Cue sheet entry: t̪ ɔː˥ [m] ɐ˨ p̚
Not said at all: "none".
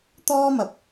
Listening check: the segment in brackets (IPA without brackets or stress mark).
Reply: m